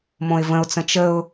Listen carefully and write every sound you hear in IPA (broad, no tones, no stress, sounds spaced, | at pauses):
m õ ɪ̯ v ə̃ ʊ̯ t͡s ə̃ t͡ʃ ə ʊ̯